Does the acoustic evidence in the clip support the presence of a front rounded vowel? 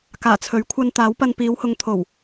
no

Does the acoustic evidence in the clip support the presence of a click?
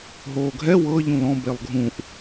no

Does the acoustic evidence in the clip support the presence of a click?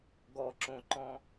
yes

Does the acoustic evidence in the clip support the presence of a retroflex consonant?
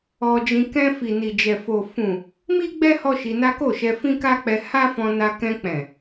no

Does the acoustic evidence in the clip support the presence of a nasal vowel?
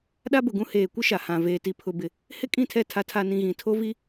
yes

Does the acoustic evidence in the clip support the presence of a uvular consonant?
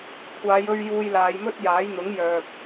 no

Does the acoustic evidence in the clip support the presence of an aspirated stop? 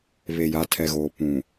yes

